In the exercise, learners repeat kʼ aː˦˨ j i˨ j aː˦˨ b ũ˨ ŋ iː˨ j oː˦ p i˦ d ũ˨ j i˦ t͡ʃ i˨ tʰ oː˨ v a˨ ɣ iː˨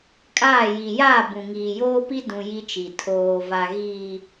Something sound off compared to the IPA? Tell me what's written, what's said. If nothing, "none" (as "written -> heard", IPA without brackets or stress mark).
none